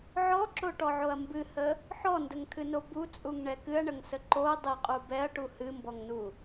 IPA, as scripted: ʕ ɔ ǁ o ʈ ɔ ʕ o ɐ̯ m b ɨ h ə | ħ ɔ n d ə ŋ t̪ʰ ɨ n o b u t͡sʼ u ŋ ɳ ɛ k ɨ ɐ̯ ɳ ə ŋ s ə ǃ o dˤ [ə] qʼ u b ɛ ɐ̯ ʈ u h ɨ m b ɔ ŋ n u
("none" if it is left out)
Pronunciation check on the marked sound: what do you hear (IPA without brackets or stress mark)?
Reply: ə